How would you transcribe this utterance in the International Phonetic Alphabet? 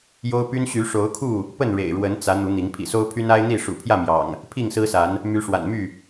j o˦ ʊ̯ p y˦ n ɕ y˨˦ ʂ o˨˦ ʊ̯ kʰ u˥˨ | p ə˥˨ n ɻ ḛ˨˩ ɪ̯ ɻ w ə˨˦ n t͡s ä˨˦ n̪ u˨˦ n̪ i˨˦ ŋ pʰ ḭ˨˩ s o˦ ʊ̯ pʰ y˦ n a˦ ɪ̯ n̪ i˥˨ ʂ ṵ˨˩ pʰ j ä˥˨ m j ɑ̰˨˩ ŋ | pʰ i˥˨ ŋ s ɹ̩˦ s a˨˦ n | m y˨˦ ʂ w a̰˨˩ n m y˥˨

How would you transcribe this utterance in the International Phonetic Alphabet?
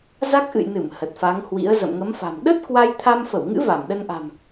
z a˦˥ k̚ ʔ ɨ̰˧˨ j n ɨ˧˩ m h ə˨˩ t̚ f a˨˦ ŋ h w ḭ˧˥ ə̯ z ə̰˧˨ m ŋ ə˨˦ m f a̤˨˩ m ɗ ə˦˥ t̚ k w a˧ j t̪ʰ a˧ m f ə˧˩ w ŋ ɨ̰˧˥ v a˧˩ m ɗ ə˧ n ʔ a̤˨˩ m

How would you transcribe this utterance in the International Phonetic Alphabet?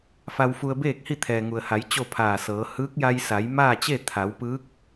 f a˧ w f u˧ ə̯ b eː˥˨ k̚ h i˥˨ t̪ʰ ɛː˩ ŋ u˩ ə̯ h a˩˧ j t͡ɕ o˥˨ pʰ aː˧˩ s ɤː˩˧ h ɯː˧˥ k̚ j a˧ j s a˩˧ j m aː˥˨ t͡ɕ e˥˨ t̪ʰ a˩˧ w p ɯː˧˥ k̚

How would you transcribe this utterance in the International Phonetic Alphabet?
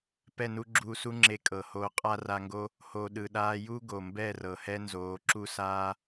p ɛ˦˨ n u˦ ɡ͡ǁ uː˧ s u˦ ŋ͡ǁ e˧ kʼ ɤ˨ h oː˧ qʼ a˦ r a˧ ŋ ɡ o˦ | h o˨ ɗ ɯ˨ ɗ aː˧ j u˦ ɡ o˨ m b ɛ˦˨ r ɤ˨ h ɛ˦ n z oː˨˦ ǁ u˦ s aː˦

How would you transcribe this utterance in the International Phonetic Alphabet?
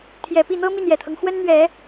t̪ʰ j ɛ˨˩ p i˥˩ n̪ ɤ˥ m i˥˩ n j ɛ˨˩ t̪ʰ ɤ˦ ŋ x w ə˥ n n̪ ɥ ɛ˨˩˦

